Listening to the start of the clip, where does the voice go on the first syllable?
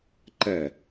falling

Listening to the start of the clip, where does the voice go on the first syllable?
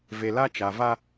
low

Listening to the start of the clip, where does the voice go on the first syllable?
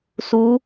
rising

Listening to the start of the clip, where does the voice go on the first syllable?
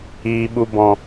low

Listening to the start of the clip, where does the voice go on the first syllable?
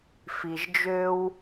low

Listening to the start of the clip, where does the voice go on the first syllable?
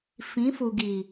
rising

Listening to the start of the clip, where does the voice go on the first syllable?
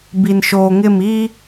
low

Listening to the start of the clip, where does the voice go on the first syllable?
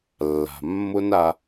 low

